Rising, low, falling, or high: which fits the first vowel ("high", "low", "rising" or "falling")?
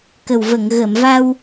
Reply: low